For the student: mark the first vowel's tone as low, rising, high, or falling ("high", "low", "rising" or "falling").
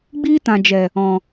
high